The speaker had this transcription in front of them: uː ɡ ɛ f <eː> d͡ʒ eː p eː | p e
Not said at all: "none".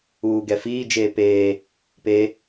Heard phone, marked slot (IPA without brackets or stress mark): iː